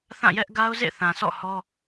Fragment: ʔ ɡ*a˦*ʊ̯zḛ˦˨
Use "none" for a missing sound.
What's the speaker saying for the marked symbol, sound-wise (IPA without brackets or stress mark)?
a˦